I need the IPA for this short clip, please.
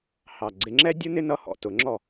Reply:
h ɑ˨˩ ɡ͡ǀ ɪ˧ ŋ͡ǁ ɛ˥ dʲ u˥ n ɪ˥ n ʌ˥˨ h ɔ̰˥˨ t ʊ˨˩˦ ŋ͡ǁ ɔ˥˨

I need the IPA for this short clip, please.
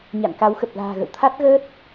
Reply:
ɲ a̰˧˨ n k a˨˦ w x ə˨˩ p̚ l a̤ː˨˩ ɣ ə̰˧˨ w t̪ʰ a˦˥ t̚ ɣ əː˦˥ t̚

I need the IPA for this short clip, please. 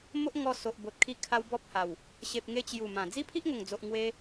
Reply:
m o˦ ʔ ŋ ɔ˧ s o˨ ʔ b o˨ t̚ kʰ i˧ kʰ a˦ w b ɔ˦ p̚ h a˨˩ w | ɕ e˨ p̚ ŋ e˧ t͡ɕ j u˨˩ m ã˨˩ d͡z i˦ pʰ i˦ ʔ ŋ o˨˩ ŋ d͡z o˨ ʔ ŋ w e˧

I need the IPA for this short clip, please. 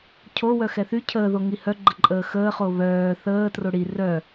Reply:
cʰ o w œ x ɛ θ y cʰ əː ð o ŋ i h œ ɡ͡ǃ ə ǃʼ əː x əː χ o β œː θ əː t r o ɽ i r œ

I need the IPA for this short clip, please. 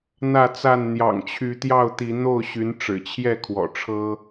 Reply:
n̪ ä˥˨ t͡s a˥˨ n n̪ j ɑ̰˨˩ ŋ t͡ɕʰ y˨˦ t̪ j ɑ˥˨ ʊ̯ t̪ i˨˦ n̪ o˥˨ ʊ̯ ɕ y˨˦ n ʈ͡ʂ ɻ̩˨˩ t͡ɕʰ j ɛ˥˨ kʰ w ɔ̰˨˩ ʈ͡ʂʰ ɤ˦

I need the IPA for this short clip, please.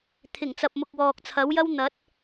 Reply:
t̪ʰ ɪ˨˩ ŋ t͡s ɐ˨ p̚ m ʊ˨ k̚ w ɔː˨ k̚ t͡sʰ ɐ˨˥ w j ɐ˥ w n̪ ɐ˨˥ t̚

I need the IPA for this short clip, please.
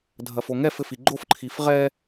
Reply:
dʱ ɐ f o ŋ ɛ f ɘ f i ɡ͡ǃ o f ǃʰ i f ʁ ɛ

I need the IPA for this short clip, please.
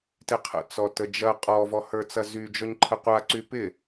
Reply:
t ɪ qʰ ə̰ t͡s ɔ t ə d͡ʒ ɐ qʼ ɔ v ɔ h ə˞ t͡s ɐ z y d͡ʒ ɔ ɲ ǃʰ ə qʷ a ǀ y p ɪ

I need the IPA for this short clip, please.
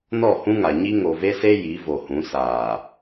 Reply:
n ɔ˦˨ h ũ˦ ŋ a˨ ɲ i˦ ŋ o˨ v e˦ s e˦ j i˨˦ v o˨ h ũ˨˦ s aː˨

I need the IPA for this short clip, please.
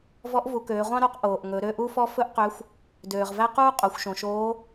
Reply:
v ɔ˧˥ ʔ v u˩˧ k øː˩˧ ʁʷ ɑ̃˥ ɾ o˧˥ q ʔ oː˩ ʔ ŋ ɵ˩˧ ɾ ø˧ ʔ u˥ f ɔ˥ f ɵ˥ ʔ q ø˧˥ xʷ | d øː˩ ʁ v æ˥ q uː˥ qʼ o˩˧ xʷ ʃ õ˩ ʃ oː˧˥

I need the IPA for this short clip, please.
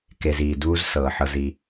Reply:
k e˨ z iː˩ d uː˦ z s ɤː˩ ħ ɤ˨ z i˨

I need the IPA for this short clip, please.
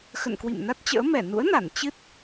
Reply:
x ə̰˧˨ n k w ḭ˧˨ m n a˦˥ t̚ t͡ɕ ə̰ː˧˥ m ɛ˧˩ n ṵ˧˥ ə̯ n a˧˩ n t͡ɕ ɨ˦˥ t̚

